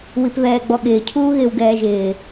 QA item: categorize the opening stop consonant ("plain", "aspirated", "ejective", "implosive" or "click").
plain